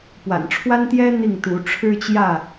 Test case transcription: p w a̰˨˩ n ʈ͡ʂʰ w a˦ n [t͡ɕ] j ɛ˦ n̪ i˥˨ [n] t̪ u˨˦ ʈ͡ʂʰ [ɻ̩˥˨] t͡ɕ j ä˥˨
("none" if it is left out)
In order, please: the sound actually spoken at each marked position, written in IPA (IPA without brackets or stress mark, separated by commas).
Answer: t̪, ŋ, ɻ̩˦